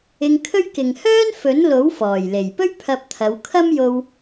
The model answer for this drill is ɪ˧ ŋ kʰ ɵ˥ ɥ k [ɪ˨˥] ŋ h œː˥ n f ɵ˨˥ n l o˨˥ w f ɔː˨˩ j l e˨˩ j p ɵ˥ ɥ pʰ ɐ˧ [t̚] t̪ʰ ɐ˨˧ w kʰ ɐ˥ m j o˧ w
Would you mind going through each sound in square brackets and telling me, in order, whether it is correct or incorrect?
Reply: incorrect: ɪ˨, incorrect: p̚

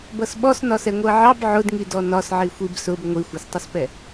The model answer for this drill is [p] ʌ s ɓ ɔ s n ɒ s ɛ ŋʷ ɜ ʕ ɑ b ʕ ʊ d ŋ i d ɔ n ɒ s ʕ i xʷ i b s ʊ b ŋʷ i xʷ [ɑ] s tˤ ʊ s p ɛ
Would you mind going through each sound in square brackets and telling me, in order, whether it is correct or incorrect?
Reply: incorrect: b, correct

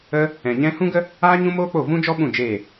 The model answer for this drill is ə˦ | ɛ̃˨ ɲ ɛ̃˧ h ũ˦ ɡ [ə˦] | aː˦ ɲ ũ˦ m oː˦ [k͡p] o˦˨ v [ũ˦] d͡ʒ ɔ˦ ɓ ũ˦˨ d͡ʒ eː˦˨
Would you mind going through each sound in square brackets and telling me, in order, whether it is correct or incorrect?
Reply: correct, correct, correct

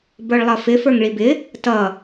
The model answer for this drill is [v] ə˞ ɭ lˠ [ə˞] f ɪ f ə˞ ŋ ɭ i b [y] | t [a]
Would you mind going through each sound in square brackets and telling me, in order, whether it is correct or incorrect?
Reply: incorrect: b, incorrect: ʌ, incorrect: ɪ, incorrect: ʌ

